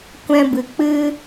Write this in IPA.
kʷ ɛ̃˧ b ɨ˨ k͡p ɨ˦

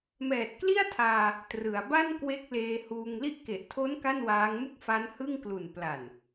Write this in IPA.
m ɛː˨˩ t̚ k l i˥˩ a̯ tʰ aː˧ | t r ɯ˩˦ a̯ b a˥˩ n k w e˦˥ k̚ l eː˧ h uː˧ ŋ l i˦˥ ʔ k e˨˩ ʔ tʰ o˦˥ n k a˥˩ n w aː˦˥ ŋ m u˥˩ k̚ f a˦˥ n h ɯ˥˩ ŋ k l u˨˩ n p l a˨˩ n

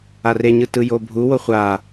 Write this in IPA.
a r e ɲ ɯ t ɯ j o bʱ u w o χʷ a

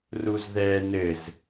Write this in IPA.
r u z ð ɛ n ɘ z

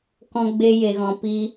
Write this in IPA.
k ɔ̃˧ ɡ͡b e˧ j e˨ ɣ ɔ̃˨ p iː˧

